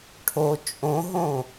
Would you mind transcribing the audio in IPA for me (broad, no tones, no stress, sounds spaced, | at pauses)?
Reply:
ʈʰ o t͡ʃʼ õ ɦ õ